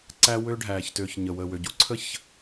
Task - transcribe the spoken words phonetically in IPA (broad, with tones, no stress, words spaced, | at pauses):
ǀæ˦ wøː˦ɖʱæː˧çtøː˧ç ɲə˨ wəː˨wø˨ɟu˦ǀʰə˦˨ç